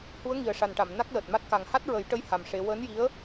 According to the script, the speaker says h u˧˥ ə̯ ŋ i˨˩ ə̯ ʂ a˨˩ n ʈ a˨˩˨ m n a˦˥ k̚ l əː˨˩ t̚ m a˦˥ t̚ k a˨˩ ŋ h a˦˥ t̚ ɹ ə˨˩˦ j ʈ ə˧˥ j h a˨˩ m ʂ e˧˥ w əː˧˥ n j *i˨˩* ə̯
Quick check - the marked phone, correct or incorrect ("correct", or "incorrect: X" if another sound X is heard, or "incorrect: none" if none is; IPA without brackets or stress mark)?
incorrect: i˧˥